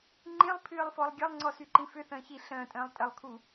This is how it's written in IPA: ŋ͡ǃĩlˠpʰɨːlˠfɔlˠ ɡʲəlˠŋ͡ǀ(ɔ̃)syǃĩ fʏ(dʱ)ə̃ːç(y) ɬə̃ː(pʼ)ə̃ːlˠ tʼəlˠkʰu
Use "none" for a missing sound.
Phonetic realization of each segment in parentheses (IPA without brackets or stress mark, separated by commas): ɔ, θ, i, tʼ